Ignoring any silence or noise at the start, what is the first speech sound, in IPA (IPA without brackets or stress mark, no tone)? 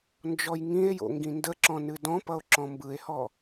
n